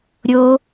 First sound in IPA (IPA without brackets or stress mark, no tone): ɾʲ